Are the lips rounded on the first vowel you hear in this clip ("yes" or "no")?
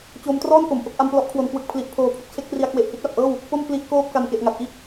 yes